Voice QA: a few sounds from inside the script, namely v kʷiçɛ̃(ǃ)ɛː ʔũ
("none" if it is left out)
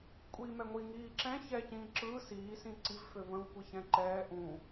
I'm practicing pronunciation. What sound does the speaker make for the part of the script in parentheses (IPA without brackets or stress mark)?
ǃ